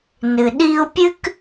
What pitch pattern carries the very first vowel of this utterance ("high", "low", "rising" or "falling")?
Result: low